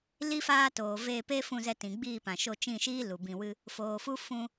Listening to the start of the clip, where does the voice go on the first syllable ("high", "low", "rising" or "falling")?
high